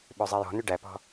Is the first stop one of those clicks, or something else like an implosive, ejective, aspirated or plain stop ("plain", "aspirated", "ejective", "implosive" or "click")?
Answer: implosive